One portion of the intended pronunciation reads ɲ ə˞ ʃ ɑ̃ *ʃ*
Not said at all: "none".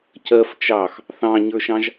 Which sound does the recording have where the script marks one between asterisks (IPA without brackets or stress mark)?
ʒ